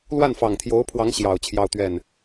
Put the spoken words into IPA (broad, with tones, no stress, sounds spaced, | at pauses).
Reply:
l w a˥˩ n f ɑ˨˩ ŋ t̪ʰ j o˧˥ ʊ̯ pʰ w ɑ˧˥ ŋ ɕ j ɑ˨˩ ʊ̯ t͡ɕʰ j ɑ˥˧ ʊ̯ t̪ ɥ ɛ˥˩ n